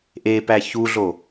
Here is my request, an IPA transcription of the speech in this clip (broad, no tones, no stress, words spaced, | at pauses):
ʔepæ çuɮo